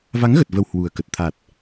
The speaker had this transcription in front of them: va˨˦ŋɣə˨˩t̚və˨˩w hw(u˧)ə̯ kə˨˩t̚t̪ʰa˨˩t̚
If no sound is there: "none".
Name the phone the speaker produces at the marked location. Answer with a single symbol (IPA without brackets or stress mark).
u˨˩